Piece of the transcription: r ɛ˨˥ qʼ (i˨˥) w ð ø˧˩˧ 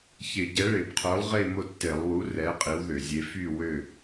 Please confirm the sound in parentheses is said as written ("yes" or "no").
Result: yes